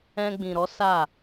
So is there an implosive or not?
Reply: no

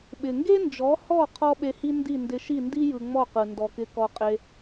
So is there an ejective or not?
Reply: yes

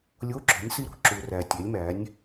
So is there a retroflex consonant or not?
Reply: no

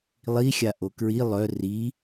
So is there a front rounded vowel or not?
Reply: yes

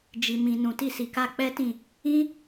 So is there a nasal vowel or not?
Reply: yes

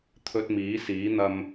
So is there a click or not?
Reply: no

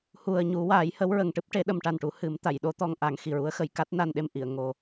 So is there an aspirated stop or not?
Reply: no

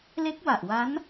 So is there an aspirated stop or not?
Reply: no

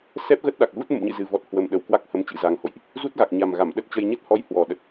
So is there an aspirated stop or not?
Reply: no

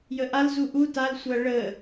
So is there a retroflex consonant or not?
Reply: yes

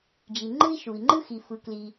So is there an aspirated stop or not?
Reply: no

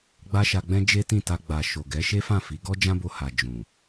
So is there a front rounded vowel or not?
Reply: no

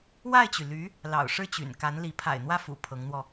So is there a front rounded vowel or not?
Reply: yes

